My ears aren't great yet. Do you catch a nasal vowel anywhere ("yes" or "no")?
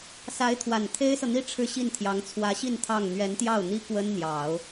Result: no